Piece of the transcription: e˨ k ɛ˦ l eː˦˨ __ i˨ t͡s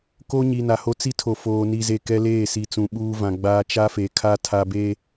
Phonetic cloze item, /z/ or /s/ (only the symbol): s